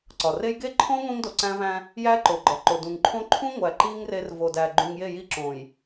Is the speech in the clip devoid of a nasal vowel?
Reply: no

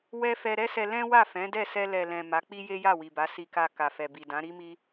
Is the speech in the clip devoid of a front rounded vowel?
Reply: yes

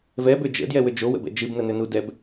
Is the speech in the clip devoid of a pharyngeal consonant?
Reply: yes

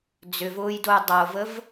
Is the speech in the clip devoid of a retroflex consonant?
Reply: yes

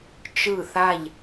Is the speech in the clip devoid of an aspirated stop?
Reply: yes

